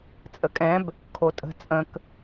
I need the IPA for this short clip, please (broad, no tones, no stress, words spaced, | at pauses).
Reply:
t͡sʼəkʼɛ̃b | kʰotʼə̤ t͡sʼə̃k